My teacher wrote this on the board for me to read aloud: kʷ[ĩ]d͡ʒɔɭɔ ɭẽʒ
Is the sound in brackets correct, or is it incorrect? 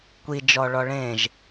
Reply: incorrect